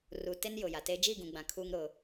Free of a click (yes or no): yes